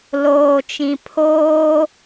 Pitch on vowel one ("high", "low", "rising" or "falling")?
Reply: low